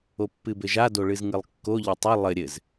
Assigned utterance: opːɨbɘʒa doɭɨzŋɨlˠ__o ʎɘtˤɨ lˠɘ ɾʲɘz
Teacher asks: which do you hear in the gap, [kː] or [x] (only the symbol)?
kː